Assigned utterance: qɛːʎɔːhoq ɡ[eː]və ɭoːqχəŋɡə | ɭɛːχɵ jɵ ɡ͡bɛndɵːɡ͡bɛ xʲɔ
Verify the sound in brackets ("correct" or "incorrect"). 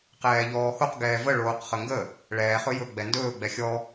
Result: incorrect